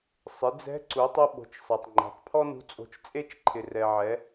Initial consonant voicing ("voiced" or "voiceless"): voiceless